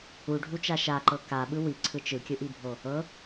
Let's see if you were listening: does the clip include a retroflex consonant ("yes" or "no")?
yes